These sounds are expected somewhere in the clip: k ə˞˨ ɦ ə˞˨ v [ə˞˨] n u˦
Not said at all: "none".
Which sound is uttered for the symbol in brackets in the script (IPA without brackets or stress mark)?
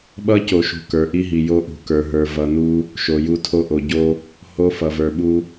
ʌ˨